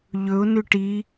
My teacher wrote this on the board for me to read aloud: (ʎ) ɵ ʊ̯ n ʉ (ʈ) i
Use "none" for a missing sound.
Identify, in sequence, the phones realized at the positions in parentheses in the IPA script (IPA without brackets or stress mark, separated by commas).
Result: ʎ, ʈ